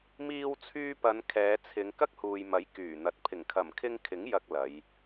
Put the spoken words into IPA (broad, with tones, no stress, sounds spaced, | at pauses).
m iː˧ w t͡sʰ yː˧ p ɐ˨˧ n kʰ ɛː˨˧ t͡sʰ ɪ˨˧ ŋ k ɐ˥ k̚ h uː˨ j m ɐ˨˥ j k yː˨˩ n̪ ɐ˨ t̚ pʰ ɪ˨˩ ŋ kʰ ɐ˨˩ m kʰ ɪ˧ ŋ kʰ ɪ˨˥ ŋ j ɐ˧ k̚ l ɐ˨˧ j